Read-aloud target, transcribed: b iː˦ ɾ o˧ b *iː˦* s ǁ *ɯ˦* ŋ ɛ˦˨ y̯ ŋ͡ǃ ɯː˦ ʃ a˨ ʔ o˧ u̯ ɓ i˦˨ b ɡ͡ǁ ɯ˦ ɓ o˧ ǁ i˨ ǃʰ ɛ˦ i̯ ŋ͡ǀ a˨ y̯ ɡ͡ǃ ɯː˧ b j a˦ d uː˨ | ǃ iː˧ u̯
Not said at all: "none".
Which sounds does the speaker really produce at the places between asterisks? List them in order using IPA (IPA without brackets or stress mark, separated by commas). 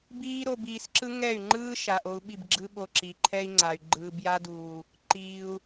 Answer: iː˧, ɯ˦